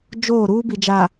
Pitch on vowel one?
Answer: falling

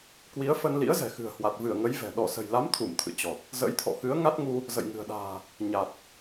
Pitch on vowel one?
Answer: rising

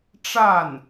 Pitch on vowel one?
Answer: falling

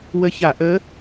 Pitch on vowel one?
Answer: rising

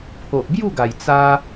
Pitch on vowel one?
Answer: low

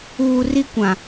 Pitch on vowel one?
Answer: low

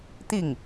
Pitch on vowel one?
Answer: falling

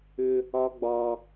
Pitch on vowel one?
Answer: high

